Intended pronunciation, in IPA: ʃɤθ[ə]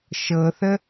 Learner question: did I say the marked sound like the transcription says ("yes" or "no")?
yes